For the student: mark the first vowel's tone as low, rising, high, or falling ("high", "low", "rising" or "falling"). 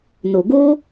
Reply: low